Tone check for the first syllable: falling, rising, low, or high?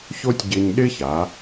high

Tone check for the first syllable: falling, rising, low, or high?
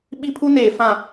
high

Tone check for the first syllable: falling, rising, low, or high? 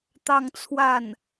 falling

